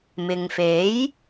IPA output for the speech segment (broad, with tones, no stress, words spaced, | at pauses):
mɪ˨ŋfe˨˥j